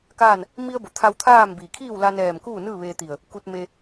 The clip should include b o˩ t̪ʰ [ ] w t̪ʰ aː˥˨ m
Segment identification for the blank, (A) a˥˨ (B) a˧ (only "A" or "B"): B